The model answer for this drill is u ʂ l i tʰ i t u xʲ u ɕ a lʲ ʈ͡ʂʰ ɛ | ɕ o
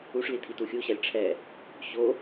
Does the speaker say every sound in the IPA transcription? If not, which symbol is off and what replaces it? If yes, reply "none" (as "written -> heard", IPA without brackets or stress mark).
none